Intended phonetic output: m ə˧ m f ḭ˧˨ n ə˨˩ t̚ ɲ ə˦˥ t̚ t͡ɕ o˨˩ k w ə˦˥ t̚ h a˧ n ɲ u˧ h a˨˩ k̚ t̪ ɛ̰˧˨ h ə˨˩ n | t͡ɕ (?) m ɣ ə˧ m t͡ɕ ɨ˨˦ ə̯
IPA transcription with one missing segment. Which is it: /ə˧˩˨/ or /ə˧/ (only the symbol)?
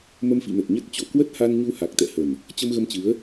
ə˧